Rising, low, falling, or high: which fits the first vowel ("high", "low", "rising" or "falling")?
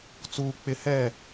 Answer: high